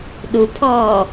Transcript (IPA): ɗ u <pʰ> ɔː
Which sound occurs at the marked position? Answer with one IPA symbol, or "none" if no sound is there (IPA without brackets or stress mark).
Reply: pʰ